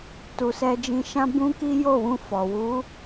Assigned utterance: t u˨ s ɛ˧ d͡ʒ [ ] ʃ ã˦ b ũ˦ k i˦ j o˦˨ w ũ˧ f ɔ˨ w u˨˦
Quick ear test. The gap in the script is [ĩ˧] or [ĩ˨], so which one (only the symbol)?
ĩ˧